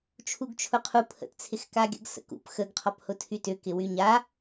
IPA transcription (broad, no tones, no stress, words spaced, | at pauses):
t͡ʃʰuɡt͡ʃʰʊqʰu pʰə̰tt͡sʰɪx kaɡʲə̰ɡ sə̰kṵp xəɡqʰɔphʊ tʰytʏkɪ wyɲa